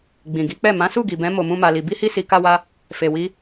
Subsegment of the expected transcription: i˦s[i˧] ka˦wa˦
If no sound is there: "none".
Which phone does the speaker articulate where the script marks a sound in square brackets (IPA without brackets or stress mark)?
i˧